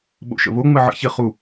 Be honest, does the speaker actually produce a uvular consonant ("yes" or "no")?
yes